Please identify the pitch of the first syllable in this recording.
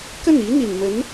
falling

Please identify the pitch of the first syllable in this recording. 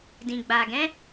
low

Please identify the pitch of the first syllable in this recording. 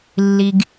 low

